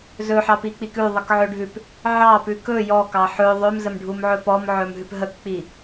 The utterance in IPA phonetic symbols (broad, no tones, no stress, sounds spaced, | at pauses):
z ɵ ħ ɑ p i k͡p i k ʉ ðˤ ə k ʕ ɵ ɖʱ ʉ p | ʕ ɑ p ʉ k ɵ j ɔ k ɑ ħ ɵ ðˤ ø m z ə m ɖʱ u m ʕ ɵ p ɔ m ʕ ɵ m ɦ ʉ p ɦ ə k k͡p i